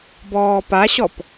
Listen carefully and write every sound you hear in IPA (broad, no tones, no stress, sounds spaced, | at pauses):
b ɔː p a ɕ ɔ p